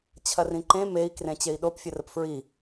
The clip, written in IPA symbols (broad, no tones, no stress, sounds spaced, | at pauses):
t͡ɕʰ ɐ r ĩ ǃ ẽ m e i̯ k r ẽ t͡ɕ e i̯ ɗ o p fʲ ə r ə p f ɹ i